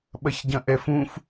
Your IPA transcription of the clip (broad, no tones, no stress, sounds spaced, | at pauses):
ɓ ɐ ç ɟ ɐ̃ ʔ ɛ f ũ f